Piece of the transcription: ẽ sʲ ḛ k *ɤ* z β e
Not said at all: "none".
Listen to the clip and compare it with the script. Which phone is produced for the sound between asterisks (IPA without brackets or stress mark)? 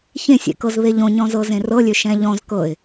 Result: ɤ